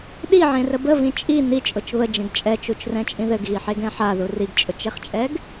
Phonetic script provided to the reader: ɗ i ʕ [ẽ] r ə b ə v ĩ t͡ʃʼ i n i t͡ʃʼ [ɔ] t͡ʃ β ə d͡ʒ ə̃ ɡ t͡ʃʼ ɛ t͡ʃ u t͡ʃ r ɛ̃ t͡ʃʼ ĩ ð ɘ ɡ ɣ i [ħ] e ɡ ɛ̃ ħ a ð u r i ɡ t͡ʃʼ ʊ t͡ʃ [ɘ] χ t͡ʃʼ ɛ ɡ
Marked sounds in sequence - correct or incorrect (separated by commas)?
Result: correct, incorrect, correct, incorrect